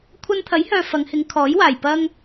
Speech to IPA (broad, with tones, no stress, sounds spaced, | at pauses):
kʷʰ ɐ˧ n t̪ʰ ɐ˨˥ j h œː˨ f ɐ˨˧ ŋ h ɪ˨˧ ŋ kʰ ɔː˨˥ j w aː˨˩ j p ɐ˧ ŋ